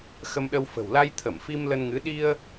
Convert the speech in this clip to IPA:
x ə˧ m ɗ ə˧ w f ə̤˨˩ w l a˧ j t̪ʰ ə˧˩ m f i˧ m l ə˧ n ŋ ɨ˨˦ ɗ i˧ ə̯

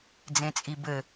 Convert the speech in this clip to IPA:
d͡z ẽ t͡sʼ i b ɘ

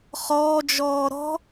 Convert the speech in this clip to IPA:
χ ɔː d͡ʒ ɔː ɾ ɔ̤

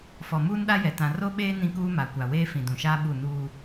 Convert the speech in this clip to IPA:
f ɔ˨ m uː˦ n ɗ a˦ j ɛ˨ t ã˨ r o˦ ɓ eː˦ n ĩ˦ k uː˦ m a˨ kʷ a˨ w eː˦ f ĩ˨ d ũ˨ ʃ aː˦ ɓ u˦˨ n uː˦

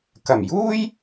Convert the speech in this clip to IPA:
k ɐ˨˩ m j uː˥ j

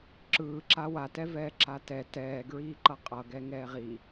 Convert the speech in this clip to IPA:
ǁ ɯː ǁ a w a t ɛ v ɛː ǁ a t ɛ t ɛː ɡ ɹ iː ǃ ʌ qʼ ʌ ɡ ɛ ŋ ɛː ʁ i

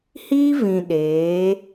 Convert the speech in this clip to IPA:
h iː˦ v ĩ˨ ɗ eː˨˦

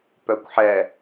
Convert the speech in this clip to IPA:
p œ kʷ ħ ɛ

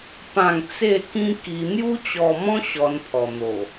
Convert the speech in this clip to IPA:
p ã˥˧ ŋ t͡s e˥˧ k ĩ˦ k i˧ n̪ j u˦ t͡ɕ ɔ˧ m ɔ̃˦ ɕ ɔ˧ n pʰ ɔ˨˩ n̪ o˨˩

